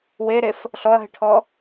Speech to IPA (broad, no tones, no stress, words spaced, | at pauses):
weɾef | ɬɔɐ̯ɦɪʈʰɔ